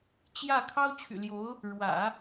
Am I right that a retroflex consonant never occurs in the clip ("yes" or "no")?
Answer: no